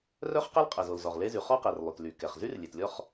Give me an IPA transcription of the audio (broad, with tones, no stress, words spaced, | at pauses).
rœ˥χqɛ˥lqʼɛ˩zo˩l zɔ˩ʁ le˥zy˩ χɔ˥qɛ˩r lˠy˩tly˩kɛ˩χzy˥r lʲe˩tlʲɔ˥χ